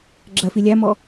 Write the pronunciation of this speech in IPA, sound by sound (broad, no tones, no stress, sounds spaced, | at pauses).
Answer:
ɡ͡ǁ ɜ f i lʲ æ m ɔ